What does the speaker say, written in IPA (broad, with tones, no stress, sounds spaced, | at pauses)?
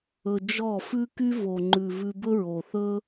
ɵ˧ d͡ʒ ɔ˦˨ f ʉ˦ k y˦ v o˨ ŋ͡ǃ ʉ˨ v ʉ˧ b ɵ˦ ɹ o˨ θ ɵ˦